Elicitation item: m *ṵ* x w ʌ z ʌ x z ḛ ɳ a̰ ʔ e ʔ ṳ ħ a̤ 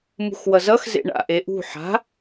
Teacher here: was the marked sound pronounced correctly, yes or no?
no